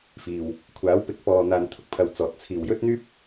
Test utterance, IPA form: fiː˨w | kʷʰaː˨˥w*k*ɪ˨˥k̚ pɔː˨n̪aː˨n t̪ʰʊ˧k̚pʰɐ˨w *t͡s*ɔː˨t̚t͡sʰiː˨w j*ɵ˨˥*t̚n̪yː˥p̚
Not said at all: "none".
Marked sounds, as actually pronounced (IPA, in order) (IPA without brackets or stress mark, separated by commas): p, t͡s, ɵ˥